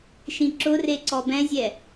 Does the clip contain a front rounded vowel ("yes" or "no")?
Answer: no